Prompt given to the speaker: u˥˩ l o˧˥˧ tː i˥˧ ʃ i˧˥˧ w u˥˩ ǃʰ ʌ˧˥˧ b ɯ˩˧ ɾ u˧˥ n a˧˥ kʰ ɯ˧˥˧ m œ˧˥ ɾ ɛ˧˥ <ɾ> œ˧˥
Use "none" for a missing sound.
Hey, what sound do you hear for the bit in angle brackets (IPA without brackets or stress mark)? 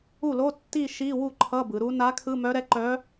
ǃ